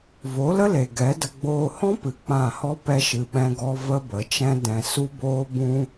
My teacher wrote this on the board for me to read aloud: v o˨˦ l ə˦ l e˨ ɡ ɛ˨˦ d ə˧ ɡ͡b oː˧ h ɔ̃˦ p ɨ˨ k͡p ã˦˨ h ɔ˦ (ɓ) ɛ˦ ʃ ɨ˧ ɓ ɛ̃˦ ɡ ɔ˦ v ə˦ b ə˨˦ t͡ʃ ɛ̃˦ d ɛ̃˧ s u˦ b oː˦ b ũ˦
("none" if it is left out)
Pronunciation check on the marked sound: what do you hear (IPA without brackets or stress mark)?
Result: p